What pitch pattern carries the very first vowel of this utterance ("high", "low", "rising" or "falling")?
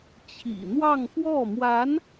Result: low